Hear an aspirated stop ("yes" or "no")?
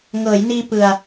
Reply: no